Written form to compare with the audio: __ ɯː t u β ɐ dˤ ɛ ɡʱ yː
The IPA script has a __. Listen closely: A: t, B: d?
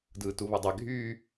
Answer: B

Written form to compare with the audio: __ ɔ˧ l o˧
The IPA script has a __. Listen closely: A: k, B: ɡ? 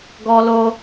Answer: B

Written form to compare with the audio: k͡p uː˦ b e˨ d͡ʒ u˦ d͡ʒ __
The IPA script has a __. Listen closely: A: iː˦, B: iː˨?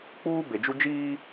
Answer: A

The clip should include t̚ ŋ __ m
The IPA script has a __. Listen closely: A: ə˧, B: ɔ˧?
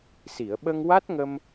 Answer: A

